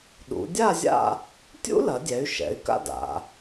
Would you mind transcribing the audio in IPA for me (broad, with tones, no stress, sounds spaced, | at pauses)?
ɗ ṵ˩˧ dʲ a˥˧ zʲ a̰˥˧ | tʲ ṵ˥ l ɐ˩˧ dʲ ɛ˩˧ y̯ ʃ ɛ̰˩˧ y̯ k a̰˥ d a̰˩˧